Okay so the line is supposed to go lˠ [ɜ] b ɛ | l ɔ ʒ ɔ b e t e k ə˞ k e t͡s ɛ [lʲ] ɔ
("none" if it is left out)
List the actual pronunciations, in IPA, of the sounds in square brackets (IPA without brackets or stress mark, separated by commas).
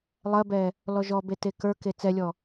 ɜ, lʲ